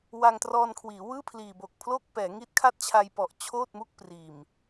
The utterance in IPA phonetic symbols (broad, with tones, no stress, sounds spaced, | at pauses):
w a˧ ŋ t r ɔː˧ n kʰ w iː˩˦ w ɯː˥˩ pʰ l iː˨˩ b o˨˩ k̚ pʰ l oː˥˩ k̚ p ɛː˩˦ ŋ i˦˥ t̚ kʰ a˥˩ t̚ t͡ɕʰ a˧ j p ɔ˨˩ ʔ t͡ɕʰ oː˥˩ t̚ m u˥˩ k̚ p r iː˨˩ m